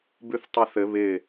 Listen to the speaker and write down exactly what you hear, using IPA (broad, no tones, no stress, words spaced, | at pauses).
bʉθtˤeθɘ βɪ